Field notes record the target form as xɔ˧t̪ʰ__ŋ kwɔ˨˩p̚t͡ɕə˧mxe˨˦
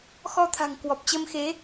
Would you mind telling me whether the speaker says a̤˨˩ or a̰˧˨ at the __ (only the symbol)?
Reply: a̤˨˩